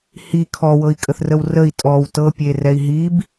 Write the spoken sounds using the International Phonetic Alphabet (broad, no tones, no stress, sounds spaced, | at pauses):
h i kʰ ɔ w ɤ i̯ kʼ ə θ r ə w r ə i̯ tʼ ɔ w t ɤ pʲ e r ɛ i̯ ɦ i b